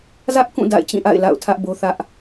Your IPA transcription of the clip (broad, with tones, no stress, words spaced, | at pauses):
zä˦ʔkũ˦˨ da̰˦˨ɪ̯t͡ɕĩ˦˨ ʔa̰˦˨ɪ̯ la̰˦˨ʊ̯tʰä˦ʔbo˦ θä˦ʔ